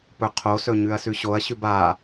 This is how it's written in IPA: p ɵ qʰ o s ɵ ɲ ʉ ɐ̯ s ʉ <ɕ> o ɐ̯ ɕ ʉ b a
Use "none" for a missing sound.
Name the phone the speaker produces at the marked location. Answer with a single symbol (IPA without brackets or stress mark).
ɕ